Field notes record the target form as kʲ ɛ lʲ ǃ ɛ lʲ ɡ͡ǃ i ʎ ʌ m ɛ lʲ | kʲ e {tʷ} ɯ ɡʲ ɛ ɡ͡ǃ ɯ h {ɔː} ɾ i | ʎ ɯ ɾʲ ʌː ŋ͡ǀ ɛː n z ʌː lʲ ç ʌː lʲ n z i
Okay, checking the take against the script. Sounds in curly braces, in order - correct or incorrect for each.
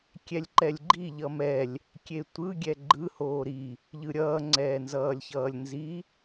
correct, incorrect

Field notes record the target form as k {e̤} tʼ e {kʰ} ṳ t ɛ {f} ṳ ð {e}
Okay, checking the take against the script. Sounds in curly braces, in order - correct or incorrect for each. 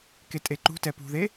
incorrect, incorrect, incorrect, correct

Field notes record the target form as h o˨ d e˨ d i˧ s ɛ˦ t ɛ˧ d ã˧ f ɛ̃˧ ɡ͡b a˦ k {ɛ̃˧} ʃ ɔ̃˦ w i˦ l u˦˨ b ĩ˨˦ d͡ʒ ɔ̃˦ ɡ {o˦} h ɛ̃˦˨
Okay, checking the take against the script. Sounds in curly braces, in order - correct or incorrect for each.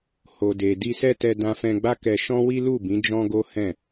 incorrect, correct

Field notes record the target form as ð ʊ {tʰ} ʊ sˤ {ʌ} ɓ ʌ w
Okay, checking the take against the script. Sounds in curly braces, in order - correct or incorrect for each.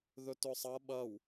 incorrect, correct

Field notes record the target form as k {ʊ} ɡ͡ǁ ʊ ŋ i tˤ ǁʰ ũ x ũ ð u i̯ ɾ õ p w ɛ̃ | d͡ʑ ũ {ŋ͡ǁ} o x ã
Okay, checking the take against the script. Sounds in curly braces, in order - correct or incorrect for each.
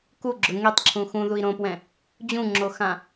incorrect, correct

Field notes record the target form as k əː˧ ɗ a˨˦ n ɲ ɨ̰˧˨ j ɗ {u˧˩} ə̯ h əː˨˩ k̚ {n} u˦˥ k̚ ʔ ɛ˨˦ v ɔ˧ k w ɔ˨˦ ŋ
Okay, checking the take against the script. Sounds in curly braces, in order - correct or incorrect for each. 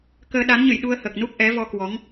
incorrect, correct

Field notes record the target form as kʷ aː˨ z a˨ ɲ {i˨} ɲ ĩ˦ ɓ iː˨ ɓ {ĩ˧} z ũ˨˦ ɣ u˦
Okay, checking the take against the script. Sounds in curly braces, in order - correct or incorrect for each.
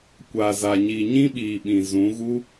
correct, incorrect

